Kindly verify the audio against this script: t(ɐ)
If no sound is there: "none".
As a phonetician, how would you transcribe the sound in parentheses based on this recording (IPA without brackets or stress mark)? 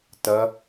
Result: ɐ